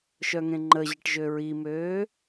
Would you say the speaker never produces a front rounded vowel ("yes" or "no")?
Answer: no